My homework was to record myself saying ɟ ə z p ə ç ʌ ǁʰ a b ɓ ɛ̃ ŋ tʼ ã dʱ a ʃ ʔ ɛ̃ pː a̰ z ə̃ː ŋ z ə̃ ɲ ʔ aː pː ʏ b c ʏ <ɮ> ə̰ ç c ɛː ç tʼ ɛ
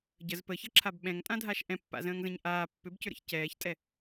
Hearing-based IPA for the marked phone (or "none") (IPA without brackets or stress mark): ɾ